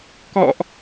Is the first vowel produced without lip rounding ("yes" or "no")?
no